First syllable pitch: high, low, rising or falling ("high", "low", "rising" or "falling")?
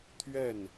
falling